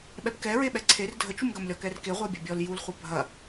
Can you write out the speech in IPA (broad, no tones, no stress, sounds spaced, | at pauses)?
ɓ ɛ p k ɛ ɹ e ɓ ɛ ǀʰ e r dʱ ə t͡ʃ u m ɡ ɐ m lʲ ɔ k ɛ r k e ʁʷ e bʲ ɐ bʲ ɔ l j u l χʷ ɐ bʱ ɐ